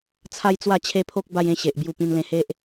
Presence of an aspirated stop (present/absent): present